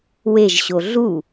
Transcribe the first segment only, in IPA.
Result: w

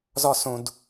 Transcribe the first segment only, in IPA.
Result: z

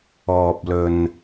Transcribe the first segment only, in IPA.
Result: ɔː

